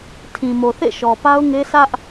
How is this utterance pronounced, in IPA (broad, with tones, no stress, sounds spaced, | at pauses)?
tʰ ĩ˨ m o˨ θ ḛ˦˨ ʃ ɔ˨ p a˦ ʊ̯ ŋ e˦ s ä˦ ʔ